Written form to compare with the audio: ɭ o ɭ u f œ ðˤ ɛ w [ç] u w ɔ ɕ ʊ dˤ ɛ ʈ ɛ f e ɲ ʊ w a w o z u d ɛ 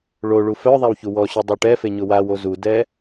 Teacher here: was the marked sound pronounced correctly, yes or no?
yes